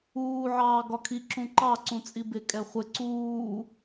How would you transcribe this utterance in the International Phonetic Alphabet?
uː ʕ ɑː ɡ ɒ kʰ i ǁ ũ ǃ ɑ ǀ ũ t͡sʼ i b ɪ kʼ ɛ χʷ ɪ ǀ uː

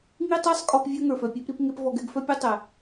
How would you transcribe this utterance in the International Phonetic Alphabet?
ŋ i˦ tˤ ɜ˦ sˤ kʼ ɔ˧ p vʲ œ˦ ŋ ə˞˨ f œ˨ pʲ œ˦ p ɾ i˦ p ŋ e˦ p v ɔ˧ ɡ ɛ˦ ɡ f œ˦ pʲ ə˞˦ tˤ ɛ˨

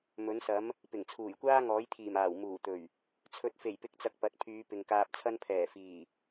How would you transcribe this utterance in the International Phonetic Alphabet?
m ɵ˨˥ n s ɐ˨˥ m | p ɪ˨˩ ŋ t͡sʰ uː˨˩ j kʷ aː˥ ŋ ɔː˨˥ j t̪ʰ iː˨˩ m aː˨˩ w m uː˨˩ t̪ ɵ˨˩ ɥ | t͡sʰ ɵ˨˥ t̚ f e˨˩ j p ɪ˨˥ k̚ t͡s ɐ˨ k̚ p ɐ˨ t̚ pʰ yː˨˧ p ɪ˨ ŋ k aː˧ p̚ t͡sʰ ɐ˥ n pʰ ɛː˨˩ f iː˨˩

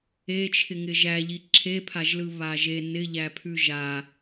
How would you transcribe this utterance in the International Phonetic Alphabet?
e t͡ʃʰ ɪ ŋ ɪ ʒ æ ʎ i ǁʰ e pʰ a ʒ l ɯ β a ʒ e n ɪ ʎ æ pʰ ʉ ʒ a

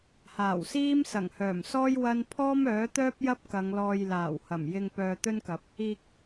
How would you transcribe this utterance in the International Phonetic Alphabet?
h aː˨˩ w s iː˥ m s ɐ˨˩ ŋ h œː˨˩ m s ɔː˥ j w ɐ˥ n pʰ ɔː˥ m œː˨˥ t̪ œː˥ p̚ j ɐ˥ p̚ k ɐ˨˧ ŋ l ɔː˧ j l aː˨˩ w h ɐ˨˩ m j ɪ˧ ŋ p œː˧ t̪ ɵ˥ n k ɐ˨˥ p̚ | iː˧ k̚

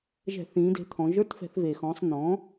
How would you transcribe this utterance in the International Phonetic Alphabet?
ʒ ɛ̤˧˩˧ θ ĩː˩˧ d e̤˩˧ t̪ʰ ɔ̃˩˧ ʒ ə˞˧˥˧ t f ɛ̤˧˩˧ θ v eː˩ x ɔ̃ː˩˧ sˤ n̪ ɔ̃ː˩˥

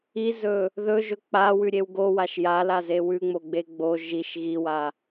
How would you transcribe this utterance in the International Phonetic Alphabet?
i z ɵ | ð ɵ ʒ ɵ k͡p a w ʉ ɾʲ e w ɡ o w a ʃ j a l a z e w ʉ ŋ͡m o ɡ͡b e ɡ͡b o ʒ i ʃ ɣ i w a

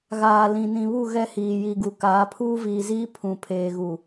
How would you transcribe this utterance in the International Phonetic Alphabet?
ɣ aː˨ l ĩ˨ n ĩ˨ β u˦˨ ɣ ɛ˦ h iː˨ j i˨ ɡ u˨ k aː˨˦ pʰ uː˦ v iː˨ z iː˦ pʰ ũ˨ pʰ eː˨ ɣ u˨

